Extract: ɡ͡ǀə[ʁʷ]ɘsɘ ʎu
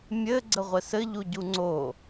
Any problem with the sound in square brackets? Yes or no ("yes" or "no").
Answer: no